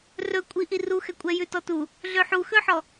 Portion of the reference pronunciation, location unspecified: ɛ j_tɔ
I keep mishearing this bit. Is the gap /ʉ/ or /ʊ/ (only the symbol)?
ʉ